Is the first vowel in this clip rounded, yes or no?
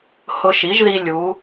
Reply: yes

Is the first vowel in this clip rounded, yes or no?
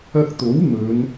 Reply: no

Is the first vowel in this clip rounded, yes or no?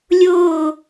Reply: yes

